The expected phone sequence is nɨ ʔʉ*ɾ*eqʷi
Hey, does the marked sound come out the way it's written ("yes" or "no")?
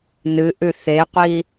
no